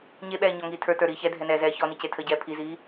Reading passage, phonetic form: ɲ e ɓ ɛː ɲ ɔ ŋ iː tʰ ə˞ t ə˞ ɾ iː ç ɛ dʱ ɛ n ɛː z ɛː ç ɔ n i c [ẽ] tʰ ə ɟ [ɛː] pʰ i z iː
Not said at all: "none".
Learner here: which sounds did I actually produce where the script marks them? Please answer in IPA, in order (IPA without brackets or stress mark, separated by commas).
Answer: e, ɛː